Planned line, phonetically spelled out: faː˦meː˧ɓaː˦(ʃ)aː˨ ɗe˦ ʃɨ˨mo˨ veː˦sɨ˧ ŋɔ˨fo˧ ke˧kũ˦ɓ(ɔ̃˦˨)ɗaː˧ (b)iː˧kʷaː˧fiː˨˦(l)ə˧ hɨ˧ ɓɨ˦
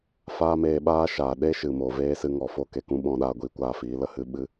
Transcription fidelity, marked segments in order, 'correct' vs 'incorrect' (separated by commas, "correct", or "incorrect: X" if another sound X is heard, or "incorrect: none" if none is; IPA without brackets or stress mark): correct, correct, incorrect: ɡʷ, correct